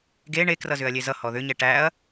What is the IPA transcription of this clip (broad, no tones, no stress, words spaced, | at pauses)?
ɡe ɳekrʌzʏɐ̯ lʲezʌ hɔðʏɲɛ ʈæɐ̯